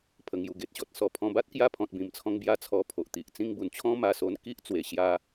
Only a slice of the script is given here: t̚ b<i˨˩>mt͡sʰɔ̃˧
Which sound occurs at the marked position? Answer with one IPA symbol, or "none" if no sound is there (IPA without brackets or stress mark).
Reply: ĩ˨˩